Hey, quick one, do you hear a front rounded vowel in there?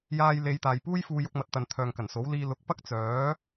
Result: yes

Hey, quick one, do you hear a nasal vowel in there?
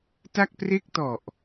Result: no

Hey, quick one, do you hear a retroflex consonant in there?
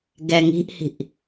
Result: no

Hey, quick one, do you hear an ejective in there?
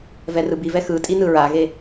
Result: yes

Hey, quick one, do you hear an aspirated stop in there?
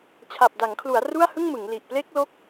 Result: yes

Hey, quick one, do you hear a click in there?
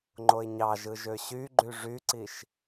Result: yes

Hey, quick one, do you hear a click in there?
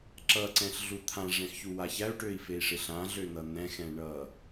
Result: yes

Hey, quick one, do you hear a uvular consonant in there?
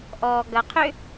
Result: yes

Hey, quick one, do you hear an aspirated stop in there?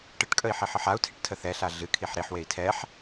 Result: yes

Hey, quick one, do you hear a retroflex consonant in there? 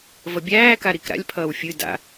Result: no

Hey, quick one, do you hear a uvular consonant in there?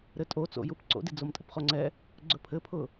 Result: yes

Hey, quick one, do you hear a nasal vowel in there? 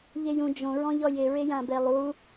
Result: yes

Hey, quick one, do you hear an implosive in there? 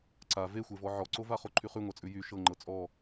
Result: no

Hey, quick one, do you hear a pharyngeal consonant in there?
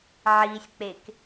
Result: yes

